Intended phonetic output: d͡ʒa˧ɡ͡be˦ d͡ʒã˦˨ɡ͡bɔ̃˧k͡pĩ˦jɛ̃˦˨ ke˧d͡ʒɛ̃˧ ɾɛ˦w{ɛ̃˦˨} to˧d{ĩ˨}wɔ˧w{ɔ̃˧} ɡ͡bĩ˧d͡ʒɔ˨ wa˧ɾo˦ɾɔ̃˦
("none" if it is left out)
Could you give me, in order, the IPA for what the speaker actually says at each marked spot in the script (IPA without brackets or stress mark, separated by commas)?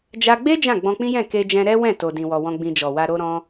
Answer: ɛ̃˦˨, ĩ˧, ɔ̃˦